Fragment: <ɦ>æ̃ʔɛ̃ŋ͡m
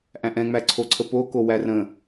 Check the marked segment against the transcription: incorrect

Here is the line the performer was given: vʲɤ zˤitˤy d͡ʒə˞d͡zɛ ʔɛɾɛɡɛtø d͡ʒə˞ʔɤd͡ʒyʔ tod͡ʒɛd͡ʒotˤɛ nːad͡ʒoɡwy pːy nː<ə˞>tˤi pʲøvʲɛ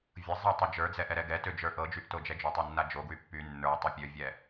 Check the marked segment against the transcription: correct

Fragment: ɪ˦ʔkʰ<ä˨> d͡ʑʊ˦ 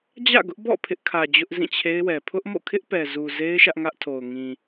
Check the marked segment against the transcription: correct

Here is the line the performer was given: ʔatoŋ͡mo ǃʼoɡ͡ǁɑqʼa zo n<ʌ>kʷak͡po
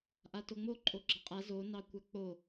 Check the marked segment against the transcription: incorrect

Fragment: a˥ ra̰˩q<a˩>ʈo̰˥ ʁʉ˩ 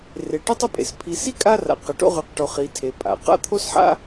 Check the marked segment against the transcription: incorrect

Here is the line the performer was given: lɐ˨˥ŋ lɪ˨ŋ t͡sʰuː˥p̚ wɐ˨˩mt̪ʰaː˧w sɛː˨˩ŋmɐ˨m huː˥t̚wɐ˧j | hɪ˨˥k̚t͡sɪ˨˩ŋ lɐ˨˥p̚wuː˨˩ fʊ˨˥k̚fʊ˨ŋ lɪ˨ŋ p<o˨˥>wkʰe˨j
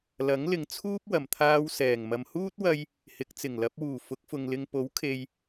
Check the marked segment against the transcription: correct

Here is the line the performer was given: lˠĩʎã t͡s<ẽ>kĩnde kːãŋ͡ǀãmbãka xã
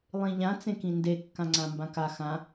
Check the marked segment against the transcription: correct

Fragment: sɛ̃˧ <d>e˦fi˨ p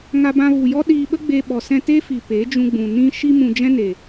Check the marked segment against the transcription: incorrect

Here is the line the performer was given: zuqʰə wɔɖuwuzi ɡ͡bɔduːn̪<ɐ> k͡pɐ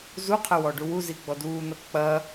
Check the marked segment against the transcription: correct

